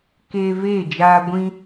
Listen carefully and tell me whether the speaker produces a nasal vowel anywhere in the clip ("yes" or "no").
yes